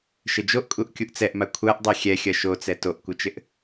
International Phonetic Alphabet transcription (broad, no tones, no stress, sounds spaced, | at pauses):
ʃ ɘ d͡ʒ o ʔ kʼ u ʔ kʲ u ʔ t͡s ɛ ʔ m a kʷʰ a ʔ dˤ e xʲ ɛ xʲ ɐ ʃ o t͡s ɛ t o ʔ kʷ ə t͡ʃ ɘ ʔ